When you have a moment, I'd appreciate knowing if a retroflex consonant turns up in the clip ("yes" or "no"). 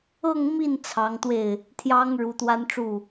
yes